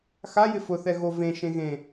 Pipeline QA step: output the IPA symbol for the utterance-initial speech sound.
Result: x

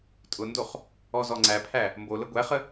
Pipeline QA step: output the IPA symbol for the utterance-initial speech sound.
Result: tʼ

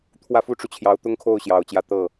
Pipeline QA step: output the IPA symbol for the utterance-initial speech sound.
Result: t̪ʰ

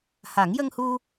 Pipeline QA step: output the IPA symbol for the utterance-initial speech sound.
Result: h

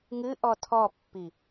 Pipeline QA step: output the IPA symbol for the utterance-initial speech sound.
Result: ŋ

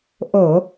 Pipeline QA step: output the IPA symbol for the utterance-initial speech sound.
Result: ʔ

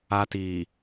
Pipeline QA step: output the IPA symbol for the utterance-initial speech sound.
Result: a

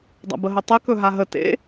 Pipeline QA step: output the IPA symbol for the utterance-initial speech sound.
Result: dˤ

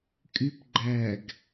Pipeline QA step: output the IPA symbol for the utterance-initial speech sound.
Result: kʼ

